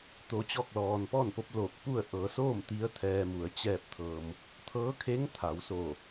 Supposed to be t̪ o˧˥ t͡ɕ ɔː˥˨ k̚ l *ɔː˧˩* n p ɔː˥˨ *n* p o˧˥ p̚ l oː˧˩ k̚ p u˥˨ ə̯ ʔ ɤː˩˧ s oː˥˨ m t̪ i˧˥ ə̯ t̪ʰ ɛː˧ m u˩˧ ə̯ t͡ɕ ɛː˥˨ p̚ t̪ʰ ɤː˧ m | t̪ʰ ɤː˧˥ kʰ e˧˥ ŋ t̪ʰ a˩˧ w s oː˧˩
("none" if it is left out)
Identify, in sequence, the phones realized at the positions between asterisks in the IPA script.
ɔː˧, n

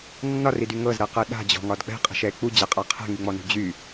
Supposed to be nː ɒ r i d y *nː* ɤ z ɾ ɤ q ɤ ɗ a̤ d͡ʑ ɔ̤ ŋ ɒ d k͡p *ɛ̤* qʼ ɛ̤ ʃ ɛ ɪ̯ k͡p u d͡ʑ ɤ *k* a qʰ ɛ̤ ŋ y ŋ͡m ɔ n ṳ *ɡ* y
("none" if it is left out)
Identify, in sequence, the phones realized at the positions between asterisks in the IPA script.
ŋ, ɛ̤, qʼ, d͡ʑ

